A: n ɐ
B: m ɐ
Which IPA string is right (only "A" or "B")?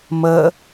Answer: B